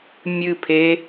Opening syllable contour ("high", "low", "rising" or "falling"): falling